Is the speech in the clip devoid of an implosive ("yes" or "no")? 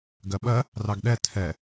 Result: no